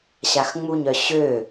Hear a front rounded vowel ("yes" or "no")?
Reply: yes